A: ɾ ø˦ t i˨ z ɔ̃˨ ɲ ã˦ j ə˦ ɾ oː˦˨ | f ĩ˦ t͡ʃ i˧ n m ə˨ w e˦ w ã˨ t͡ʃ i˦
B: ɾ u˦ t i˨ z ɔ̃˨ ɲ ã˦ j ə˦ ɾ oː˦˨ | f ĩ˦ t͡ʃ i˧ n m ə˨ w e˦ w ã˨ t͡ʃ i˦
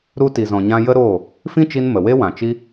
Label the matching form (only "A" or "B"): B